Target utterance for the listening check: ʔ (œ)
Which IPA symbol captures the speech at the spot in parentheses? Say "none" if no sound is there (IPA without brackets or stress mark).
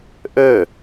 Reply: ø